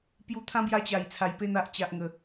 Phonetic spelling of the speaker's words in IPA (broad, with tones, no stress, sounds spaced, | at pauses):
p j u˧ t̪ʰ ã˦ b j a˧ t͡ɕ a˨˩ j t͡sʰ a˨˩ j p e˥˧ n̪ a˨ ʔ t͡ɕ a˨ ʔ ŋ ə˨˩